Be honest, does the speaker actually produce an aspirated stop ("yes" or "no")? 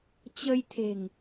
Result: yes